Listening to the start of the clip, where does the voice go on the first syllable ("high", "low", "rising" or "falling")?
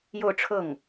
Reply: falling